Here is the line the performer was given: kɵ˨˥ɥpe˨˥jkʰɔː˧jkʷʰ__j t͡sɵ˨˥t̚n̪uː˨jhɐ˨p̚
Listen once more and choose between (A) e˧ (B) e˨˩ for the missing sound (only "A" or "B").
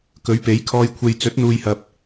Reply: A